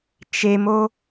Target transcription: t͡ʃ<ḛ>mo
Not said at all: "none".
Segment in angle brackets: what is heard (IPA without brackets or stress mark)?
e